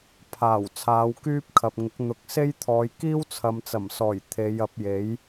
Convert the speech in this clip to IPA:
pʰ aː˨˩ w t͡sʰ aː˨˧ w k yː˥ p̚ kʰ ɐ˨ p̚ ŋ ɪ˨˥ k̚ n̪ ʊ˨ k̚ s e˥ j t̪ʰ ɔː˨˧ j k iː˥ w t͡sʰ ɐ˨ m t͡s ɐ˨˩ m s ɔː˨˩ j t̪ʰ e˨˧ j ɐ˨˥ p̚ j e˨˥ j

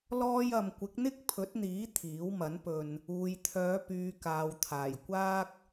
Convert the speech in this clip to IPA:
l ɔː˥ j ɐ˧ m kʷ ɪ˨˥ k̚ n̪ ɪ˥ k̚ pʰ ɵ˨˥ t̚ n̪ iː˨˥ t̪ʰ iː˨˥ w m ɐ˨˥ n p ɵ˧ n | uː˨ j t̪ʰ œː˨˧ p yː˨ k aː˨ w t̪ʰ aː˨˩ j kʷ aː˥ k̚

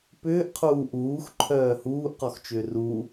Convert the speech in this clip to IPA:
p ʏː ʔ qʰ uː ʔ uː x ǃʰ œː h uː ʔ q ɔ x t͡ʃ ʏː r u

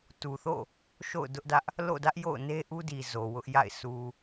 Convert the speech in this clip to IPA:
t u˨ θ o̰˦˨ | ʃ o̰˦˨ ʊ̯ d ʊ˦ ʔ d ä˦ ʔ | l o̰˦˨ d ä˦ ʔ j o̰˦˨ ʊ̯ n e˦ ʔ u˦ d i˨ z o˨ w ʊ˦ ʔ j a̰˦˨ ɪ̯ s u˨

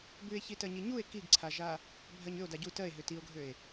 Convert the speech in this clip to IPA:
b ʉ e̯ ç i t ɜ ɲ i ɲ u e̯ k i ɡ ǀʰ a ʒ a | bʱ ɜ ɲ ʏ o̯ d a ɟ u t ɜ e̯ ɦ ʏ t i o̯ ɡʱ ø e̯

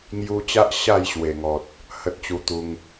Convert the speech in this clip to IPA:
ŋ j u˧ t͡ɕ a˦ ʔ ɕ a˥˧ j ɕ w e˨˩ ŋ ɔ˨ t̚ | h ə˦ t̚ t͡ɕ u˧ t̪ u˧ ŋ

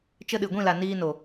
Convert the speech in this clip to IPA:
t͡ʃ ə˧ ɗ ɨ˨ ɡʷ ĩ˦˨ l a˨ n iː˧ n o˨

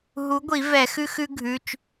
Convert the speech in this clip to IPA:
ɦ u˨˥ ɡʷ i˨˩˦ v ɛ˨˩˦ x ʉ˦ x ʉ˦ ɡʱ ʉ˩˧˩ t͡ʃ

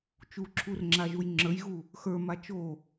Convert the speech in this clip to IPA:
t͡ʃ u ǁʰ u r ŋ͡ǁ a ʒ u j ŋ͡ǁ ə˞ j ɣ u | x ə˞ m a t͡ʃ o

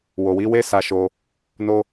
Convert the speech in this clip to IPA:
w o˨ w i˨˦ w e˦ s a˧ ʃ o˧ | n o˦

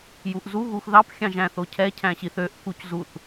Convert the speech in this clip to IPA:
j u ʔ z u ɣ u x ð ɑ p xʲ ɑ̃ ʒ æ̃ θ o cʰ ɛ cʰ æ̃ ɕ i θ ø ʔ k u c z u θ

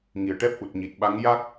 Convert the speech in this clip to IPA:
ŋ i˨˩ ə̯ ʈ ɛ˦˥ p̚ ʔ u˨˩ t̚ ɲ i˨˩ t̚ ɓ a˧˥ ŋ j a˦˥ k̚

